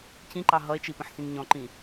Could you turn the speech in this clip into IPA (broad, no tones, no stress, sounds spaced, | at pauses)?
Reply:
cʰ ĩ ǃ ɑ ɦ ʌ e̯ t͡ʃ i p ə̃ ħ s ĩ ŋ ɲ ɔ̃ ǃ ĩ